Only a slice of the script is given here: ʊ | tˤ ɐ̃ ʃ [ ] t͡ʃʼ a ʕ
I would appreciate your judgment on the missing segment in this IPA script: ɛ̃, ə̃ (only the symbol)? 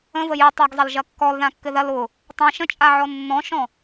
ə̃